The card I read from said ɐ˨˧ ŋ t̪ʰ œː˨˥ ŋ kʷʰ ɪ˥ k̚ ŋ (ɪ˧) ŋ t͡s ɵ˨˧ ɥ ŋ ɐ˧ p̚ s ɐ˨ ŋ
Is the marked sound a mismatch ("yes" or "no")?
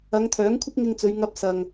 no